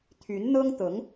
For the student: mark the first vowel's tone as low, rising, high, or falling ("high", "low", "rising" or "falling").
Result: rising